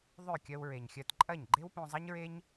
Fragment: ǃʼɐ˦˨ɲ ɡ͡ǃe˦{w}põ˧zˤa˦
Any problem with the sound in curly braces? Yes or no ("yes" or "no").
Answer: no